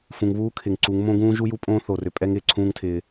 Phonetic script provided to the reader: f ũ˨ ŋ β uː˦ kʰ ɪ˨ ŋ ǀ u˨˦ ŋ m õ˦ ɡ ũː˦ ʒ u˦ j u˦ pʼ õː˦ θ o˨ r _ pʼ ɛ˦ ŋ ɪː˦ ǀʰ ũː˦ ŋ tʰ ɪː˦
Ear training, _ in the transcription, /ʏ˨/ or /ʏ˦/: ʏ˨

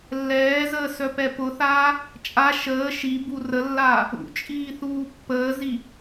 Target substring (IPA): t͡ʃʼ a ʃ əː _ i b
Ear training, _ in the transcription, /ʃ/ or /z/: ʃ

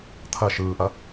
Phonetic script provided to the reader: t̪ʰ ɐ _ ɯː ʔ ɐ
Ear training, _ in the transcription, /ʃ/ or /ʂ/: ʃ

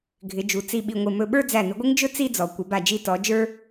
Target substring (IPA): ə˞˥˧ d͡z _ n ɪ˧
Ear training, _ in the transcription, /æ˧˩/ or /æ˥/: æ˧˩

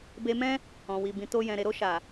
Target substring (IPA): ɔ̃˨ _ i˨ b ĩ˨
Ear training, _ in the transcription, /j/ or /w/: w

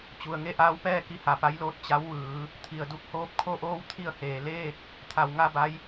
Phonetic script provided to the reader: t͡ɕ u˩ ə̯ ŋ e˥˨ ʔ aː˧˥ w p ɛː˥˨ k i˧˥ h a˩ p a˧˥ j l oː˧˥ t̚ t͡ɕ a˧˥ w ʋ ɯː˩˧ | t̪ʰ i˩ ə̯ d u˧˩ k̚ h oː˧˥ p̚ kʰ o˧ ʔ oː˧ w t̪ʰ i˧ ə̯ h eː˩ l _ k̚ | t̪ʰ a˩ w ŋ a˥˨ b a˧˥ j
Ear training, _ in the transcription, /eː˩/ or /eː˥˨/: eː˥˨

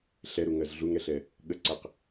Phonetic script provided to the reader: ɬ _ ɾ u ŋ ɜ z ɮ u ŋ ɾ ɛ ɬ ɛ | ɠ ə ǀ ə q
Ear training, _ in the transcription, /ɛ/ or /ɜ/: ɛ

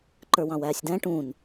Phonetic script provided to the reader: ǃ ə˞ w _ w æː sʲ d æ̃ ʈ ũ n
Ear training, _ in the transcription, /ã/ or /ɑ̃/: ɑ̃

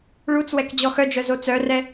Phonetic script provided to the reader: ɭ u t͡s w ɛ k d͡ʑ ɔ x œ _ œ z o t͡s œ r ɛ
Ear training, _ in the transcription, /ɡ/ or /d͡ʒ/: d͡ʒ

